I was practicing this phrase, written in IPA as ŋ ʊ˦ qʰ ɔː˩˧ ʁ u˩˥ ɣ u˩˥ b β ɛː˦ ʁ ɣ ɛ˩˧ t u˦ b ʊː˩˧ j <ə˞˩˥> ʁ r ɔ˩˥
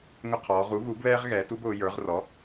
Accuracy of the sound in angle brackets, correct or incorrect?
correct